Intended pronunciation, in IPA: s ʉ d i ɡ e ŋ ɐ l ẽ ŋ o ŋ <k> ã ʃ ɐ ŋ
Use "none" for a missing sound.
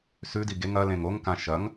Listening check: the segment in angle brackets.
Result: k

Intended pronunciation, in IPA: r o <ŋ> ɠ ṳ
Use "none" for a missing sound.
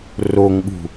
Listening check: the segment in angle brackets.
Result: ŋ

